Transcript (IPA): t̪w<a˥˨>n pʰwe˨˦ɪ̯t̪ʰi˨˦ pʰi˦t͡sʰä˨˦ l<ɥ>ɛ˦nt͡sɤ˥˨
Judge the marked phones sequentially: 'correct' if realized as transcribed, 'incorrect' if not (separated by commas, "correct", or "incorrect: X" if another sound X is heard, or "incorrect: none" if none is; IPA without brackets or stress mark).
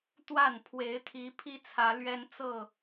correct, correct